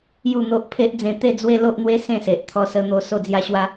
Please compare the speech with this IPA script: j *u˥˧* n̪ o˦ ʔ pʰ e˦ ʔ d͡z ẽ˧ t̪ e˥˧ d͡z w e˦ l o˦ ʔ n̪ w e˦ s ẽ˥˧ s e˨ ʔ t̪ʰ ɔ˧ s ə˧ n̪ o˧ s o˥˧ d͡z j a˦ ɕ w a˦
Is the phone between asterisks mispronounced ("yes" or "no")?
no